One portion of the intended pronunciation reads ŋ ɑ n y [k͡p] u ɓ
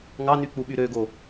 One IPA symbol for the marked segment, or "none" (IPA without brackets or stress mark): k͡p